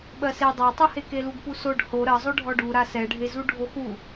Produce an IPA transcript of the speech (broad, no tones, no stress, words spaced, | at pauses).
ɓɜse dˤɜtˤuhe keluɡpusoɖ ho ɾɜ zˤoɖʱɔɖu ɾasɛɖʱezu ɖʱoxu